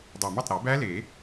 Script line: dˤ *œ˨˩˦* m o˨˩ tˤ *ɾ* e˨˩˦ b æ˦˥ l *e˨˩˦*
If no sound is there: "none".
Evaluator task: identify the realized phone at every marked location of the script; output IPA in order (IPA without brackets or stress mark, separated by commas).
æ˨˩˦, ɾ, e˨˩˦